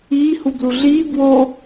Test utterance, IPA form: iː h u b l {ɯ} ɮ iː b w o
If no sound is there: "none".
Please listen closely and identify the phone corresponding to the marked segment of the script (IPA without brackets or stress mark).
u